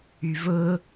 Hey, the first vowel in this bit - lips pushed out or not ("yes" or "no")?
yes